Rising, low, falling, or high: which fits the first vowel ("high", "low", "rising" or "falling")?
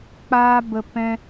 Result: high